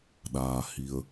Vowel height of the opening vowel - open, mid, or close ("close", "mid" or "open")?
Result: open